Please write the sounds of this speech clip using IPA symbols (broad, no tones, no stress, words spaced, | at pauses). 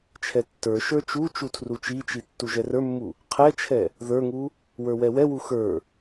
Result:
t͡ʃʰɛtːə˞ʃə˞ t͡ʃu t͡ʃutʰrut͡ʃit͡ʃi tːuʒɛrə˞mːu | qʰɛt͡ʃʰɛ | ðə˞ŋu | wə˞wɛwɛwu xə˞